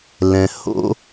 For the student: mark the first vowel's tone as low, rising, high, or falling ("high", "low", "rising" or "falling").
low